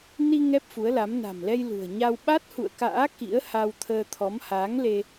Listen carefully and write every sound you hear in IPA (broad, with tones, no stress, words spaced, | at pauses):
ni˧ ŋɛ˦˥p̚fu˨˦ə̯la˨˦m na̤˨˩mlɛ˧j lṳ˨˩ə̯ ɲa˧w ɓa˦˥t̚hṵ˧˨ə̯ka̰ː˧˥ kḭ˧˥ə̯ha˧wt̪ʰəː˧t̪ʰɔ˨˦m haː˨˦ŋ le˧